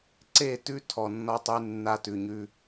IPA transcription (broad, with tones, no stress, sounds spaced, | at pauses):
ǀ e˦˨ t ʉ˦ tʰ ɔ˨ nː ɔ˦ tˤ ʉ˦ nː a˦ t ʉ˨ ɲ ʉ˦